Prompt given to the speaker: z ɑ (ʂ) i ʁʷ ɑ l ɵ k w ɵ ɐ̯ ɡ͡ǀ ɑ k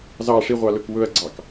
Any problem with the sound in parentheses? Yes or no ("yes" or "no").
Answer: no